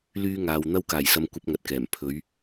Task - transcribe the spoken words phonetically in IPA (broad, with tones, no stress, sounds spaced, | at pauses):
l yː˧ ŋ aː˨ w n̪ ɐ˧ w k aː˨˩ j s ɐ˨ m kʷ ɐ˧ p̚ ŋ ɐ˨ t̚ k ɛː˨˩ m pʰ ɵ˨˧ ɥ